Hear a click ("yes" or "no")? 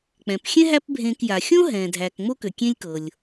no